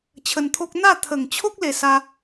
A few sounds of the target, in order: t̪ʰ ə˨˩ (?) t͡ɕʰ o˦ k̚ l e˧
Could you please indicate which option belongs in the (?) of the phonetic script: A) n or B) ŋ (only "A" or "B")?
B